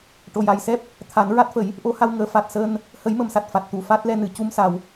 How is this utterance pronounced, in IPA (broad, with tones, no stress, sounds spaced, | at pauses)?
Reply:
ʈ o˨˩ j a˨˩ j s ɛ˦˥ p̚ | t̪ʰ a˨˩˦ n ɹ a˦˥ t̚ f ə˨˩˦ j | ʔ o˧˥ h a˧ w ŋ əː˨˩˦ f a˨˩ t̚ s əː˧ n | h ə˨˩˦ j m ə˨˩˨ m s a˨˩ t̚ f a˨˩ t̚ t̪ u˨˩ f a˦˥ t̚ l ɛ˧ n ɨ˨˩ c u˧ m s a˨˩ w